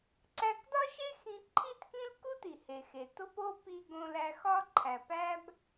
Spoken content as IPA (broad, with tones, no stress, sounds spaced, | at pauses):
ǀ æ˧ k d ɒ˥ ʃ e˥ x ĩ˧ ǃʰ i˥ t k ĩ˥ l k u˥ t i˩ h e˩ x e˩ t o˥ p o˥ p i˧ ɡ õ˧ l æ˧ x ɒ˥ ǃʰ æ˩ p æ˥ b